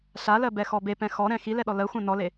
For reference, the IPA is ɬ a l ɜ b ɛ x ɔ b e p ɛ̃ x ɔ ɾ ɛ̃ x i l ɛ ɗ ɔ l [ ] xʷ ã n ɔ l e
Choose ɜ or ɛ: ɜ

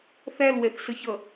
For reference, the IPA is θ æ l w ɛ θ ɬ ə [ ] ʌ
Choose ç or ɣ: ç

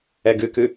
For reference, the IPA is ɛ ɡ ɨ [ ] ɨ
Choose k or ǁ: k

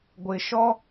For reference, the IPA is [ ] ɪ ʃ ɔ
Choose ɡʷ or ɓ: ɡʷ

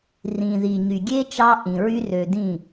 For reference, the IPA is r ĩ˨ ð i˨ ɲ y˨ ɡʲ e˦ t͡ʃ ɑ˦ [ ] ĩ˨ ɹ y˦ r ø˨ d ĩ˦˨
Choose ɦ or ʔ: ʔ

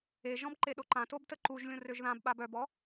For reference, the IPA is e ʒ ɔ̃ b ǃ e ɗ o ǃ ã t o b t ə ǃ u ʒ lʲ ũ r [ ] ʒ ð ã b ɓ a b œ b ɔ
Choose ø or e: ø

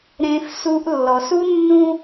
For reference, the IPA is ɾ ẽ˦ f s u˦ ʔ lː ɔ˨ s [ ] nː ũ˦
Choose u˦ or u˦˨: u˦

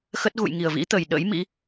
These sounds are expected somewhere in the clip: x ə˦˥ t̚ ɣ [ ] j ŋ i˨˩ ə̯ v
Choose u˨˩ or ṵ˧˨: ṵ˧˨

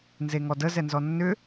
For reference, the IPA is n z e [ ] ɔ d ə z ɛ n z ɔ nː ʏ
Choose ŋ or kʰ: ŋ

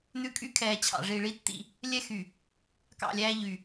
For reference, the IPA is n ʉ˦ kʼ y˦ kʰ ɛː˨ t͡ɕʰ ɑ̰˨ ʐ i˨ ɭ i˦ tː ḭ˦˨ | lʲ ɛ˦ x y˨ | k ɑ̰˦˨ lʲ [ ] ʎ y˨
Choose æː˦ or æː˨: æː˦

